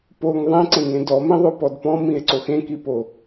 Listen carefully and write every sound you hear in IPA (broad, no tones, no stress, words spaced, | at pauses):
poŋ ðˤẽǀẽŋẽ dɔmẽðˤopɔd pɔ̃mĩe̯ǀox ẽkipo